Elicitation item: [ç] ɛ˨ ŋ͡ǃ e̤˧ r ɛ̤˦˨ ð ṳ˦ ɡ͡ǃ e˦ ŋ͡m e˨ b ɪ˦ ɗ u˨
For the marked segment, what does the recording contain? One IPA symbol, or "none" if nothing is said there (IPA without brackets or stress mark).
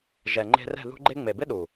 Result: ʒ